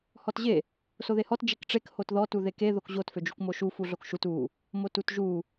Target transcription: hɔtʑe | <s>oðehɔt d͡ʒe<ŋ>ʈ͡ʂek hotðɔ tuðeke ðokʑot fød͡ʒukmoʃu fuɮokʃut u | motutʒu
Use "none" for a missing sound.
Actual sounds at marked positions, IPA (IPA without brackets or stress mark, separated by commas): s, k